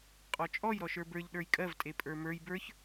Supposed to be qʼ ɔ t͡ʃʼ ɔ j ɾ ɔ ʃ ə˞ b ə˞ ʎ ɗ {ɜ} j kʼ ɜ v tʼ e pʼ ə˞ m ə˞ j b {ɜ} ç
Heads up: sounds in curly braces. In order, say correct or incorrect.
incorrect: ə˞, incorrect: ə˞

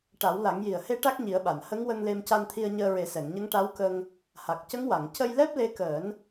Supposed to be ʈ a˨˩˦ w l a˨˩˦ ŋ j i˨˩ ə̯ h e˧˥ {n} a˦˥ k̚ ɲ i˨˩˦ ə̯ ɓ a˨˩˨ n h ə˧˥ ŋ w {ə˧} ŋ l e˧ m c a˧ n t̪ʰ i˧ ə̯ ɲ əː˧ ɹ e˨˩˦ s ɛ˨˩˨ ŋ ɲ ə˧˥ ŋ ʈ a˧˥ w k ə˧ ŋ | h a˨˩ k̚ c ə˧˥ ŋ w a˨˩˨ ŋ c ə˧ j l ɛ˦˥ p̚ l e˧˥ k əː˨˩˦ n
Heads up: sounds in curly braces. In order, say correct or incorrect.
incorrect: ʈ, correct

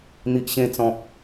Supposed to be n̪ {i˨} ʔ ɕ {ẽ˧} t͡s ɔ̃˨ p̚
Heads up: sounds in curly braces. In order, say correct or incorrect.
correct, correct

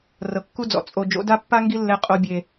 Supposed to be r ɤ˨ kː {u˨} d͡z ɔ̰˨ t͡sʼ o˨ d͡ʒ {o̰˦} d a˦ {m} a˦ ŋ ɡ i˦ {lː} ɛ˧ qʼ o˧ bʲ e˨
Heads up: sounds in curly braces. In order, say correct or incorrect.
incorrect: u˦, incorrect: o̰˨˦, incorrect: pː, correct

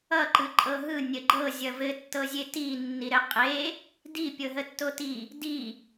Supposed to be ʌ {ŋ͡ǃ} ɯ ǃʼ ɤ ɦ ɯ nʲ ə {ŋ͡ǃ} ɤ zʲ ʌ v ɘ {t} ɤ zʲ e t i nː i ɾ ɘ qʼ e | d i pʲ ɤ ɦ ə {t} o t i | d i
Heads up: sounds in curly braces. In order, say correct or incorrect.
incorrect: ǃ, incorrect: ɡ͡ǃ, incorrect: tː, incorrect: tː

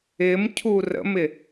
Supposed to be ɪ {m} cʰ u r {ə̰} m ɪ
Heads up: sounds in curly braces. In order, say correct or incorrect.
correct, correct

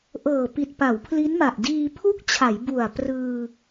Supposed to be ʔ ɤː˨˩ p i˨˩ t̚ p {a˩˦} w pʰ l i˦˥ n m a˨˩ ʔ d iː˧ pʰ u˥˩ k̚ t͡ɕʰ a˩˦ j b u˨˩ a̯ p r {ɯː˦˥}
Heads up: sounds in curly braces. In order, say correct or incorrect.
correct, incorrect: ɯː˧

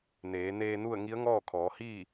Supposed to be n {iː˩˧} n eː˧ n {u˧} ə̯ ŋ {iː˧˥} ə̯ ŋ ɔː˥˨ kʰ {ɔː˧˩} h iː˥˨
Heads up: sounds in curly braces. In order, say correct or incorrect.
incorrect: eː˩˧, incorrect: u˥˨, incorrect: i˧˥, incorrect: ɔː˩˧

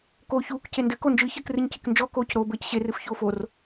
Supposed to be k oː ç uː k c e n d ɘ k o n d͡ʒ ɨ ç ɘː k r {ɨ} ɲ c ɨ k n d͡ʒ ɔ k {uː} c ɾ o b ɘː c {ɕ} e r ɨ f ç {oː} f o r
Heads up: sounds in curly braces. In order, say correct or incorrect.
correct, incorrect: oː, correct, correct

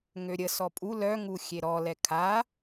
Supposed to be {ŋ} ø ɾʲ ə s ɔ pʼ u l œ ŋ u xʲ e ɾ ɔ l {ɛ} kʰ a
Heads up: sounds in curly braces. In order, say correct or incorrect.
correct, correct

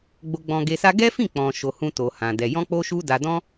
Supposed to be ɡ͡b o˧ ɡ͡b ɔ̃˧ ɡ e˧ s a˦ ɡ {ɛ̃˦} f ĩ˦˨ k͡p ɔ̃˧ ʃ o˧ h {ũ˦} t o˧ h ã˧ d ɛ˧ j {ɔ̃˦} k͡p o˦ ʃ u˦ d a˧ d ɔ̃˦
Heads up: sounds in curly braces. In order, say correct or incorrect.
incorrect: ɛ˦, correct, correct

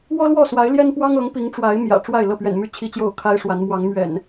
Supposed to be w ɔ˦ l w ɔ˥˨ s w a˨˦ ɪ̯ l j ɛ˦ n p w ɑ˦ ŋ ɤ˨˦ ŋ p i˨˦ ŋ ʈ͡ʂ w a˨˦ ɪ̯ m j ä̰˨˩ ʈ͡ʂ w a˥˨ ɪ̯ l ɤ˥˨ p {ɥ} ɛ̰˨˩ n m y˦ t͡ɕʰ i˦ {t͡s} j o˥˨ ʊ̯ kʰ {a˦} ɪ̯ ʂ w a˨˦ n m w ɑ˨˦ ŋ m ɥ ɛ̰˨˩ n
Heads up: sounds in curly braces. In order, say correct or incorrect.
correct, incorrect: t͡ɕ, correct

